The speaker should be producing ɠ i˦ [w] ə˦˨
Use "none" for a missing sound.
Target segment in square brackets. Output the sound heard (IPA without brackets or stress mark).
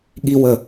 w